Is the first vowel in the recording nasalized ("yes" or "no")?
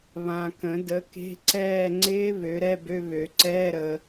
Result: yes